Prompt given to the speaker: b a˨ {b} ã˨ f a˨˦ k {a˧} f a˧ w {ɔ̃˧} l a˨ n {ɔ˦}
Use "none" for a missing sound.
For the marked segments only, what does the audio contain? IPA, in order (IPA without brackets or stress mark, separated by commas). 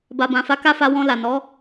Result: b, a˦, ɔ̃˧, ɔ˨˦